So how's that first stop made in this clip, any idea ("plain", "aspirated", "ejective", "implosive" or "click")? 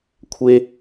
aspirated